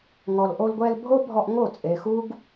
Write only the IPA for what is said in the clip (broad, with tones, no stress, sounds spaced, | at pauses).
ŋ ɔ˨ l ʔ o˧ l ɡʷ ɛ˧ l bʱ o˦ bʱ ɔ˧ ʔ ŋ o˦˨ t͡sʼ e˨ x u˦ ɡ